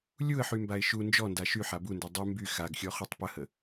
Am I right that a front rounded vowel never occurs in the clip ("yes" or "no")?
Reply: no